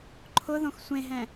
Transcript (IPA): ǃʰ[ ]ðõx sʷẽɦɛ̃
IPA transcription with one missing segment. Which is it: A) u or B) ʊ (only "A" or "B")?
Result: B